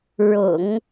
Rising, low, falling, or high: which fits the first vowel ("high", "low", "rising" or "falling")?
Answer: low